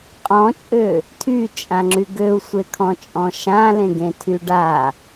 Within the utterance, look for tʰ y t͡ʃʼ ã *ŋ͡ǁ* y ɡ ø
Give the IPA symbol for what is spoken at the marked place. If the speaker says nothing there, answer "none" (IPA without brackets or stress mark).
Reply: ŋ͡ǁ